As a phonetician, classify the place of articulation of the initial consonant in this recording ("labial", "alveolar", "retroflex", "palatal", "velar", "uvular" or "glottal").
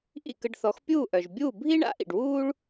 glottal